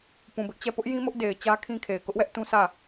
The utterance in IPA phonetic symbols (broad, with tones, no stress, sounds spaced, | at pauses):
p ũ˨ b ɪ˦ ʔ t͡ɕ ɛ˦˨ p ʊ˦ ʔ j ĩ˦ m ʊ˦ ʔ d e˨ ɪ̯ t͡ɕ ä˦ kʰ ĩ˦ kʰ e˨ ɪ̯ k ʊ˦ ʔ w ɛ˦ ʔ t ũ˦ sʰ ä˦˨